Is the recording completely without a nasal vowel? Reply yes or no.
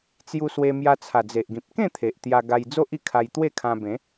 no